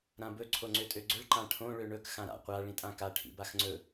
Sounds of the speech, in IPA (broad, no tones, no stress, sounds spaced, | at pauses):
ɾ ã b ɵ ǀʰ o ŋ͡ǀ ø tʼ ø ɡ͡ǀ ɵ ɭ ǃ ã ʈʰ õ ɭ ø ɳ ɵ k x ã ɾ a̰ qʷ a ɭ ĩ tʼ ã k a ʈʰ ḭ b a x ŋ͡ǀ ɵ